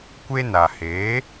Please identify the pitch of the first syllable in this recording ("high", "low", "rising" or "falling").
high